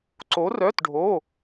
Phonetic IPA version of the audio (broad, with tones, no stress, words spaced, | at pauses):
ǀo˧˥rœ˧˥˧tɖʱo˧˥˧